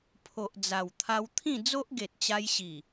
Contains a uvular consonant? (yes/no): no